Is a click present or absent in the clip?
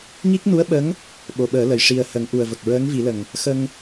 absent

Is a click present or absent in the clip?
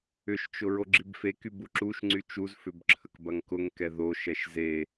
present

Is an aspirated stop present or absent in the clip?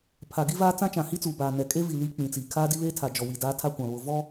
present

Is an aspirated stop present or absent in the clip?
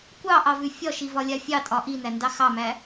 absent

